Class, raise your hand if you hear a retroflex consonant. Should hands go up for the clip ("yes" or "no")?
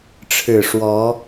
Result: yes